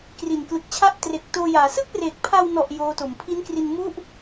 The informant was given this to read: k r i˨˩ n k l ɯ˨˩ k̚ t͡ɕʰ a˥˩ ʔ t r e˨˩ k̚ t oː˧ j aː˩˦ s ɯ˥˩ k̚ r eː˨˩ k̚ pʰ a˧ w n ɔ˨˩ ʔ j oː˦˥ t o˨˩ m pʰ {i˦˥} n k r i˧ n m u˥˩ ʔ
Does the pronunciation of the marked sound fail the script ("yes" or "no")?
no